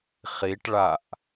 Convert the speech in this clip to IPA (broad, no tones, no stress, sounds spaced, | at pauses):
χ i ʈ ɭ a ʔ